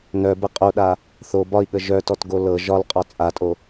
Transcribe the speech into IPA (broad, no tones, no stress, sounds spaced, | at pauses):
n œ b ə qʼ o ɗ a | θ o b ɒ i̯ ɠ ə ʒ œ t ɔ t ɡ o l ɤ ʒ ɒ l qʼ ɒ t͡sʼ a tʼ o